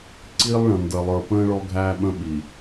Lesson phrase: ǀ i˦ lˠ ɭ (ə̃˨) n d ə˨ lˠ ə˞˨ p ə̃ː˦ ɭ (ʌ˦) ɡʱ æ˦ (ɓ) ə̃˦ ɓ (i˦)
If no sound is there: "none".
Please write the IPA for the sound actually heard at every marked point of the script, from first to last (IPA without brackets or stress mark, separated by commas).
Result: ə̃˨, ɔ˦, ɓ, i˨